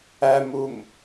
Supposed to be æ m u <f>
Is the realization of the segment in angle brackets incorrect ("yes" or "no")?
yes